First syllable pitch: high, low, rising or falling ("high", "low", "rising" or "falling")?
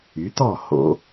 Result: rising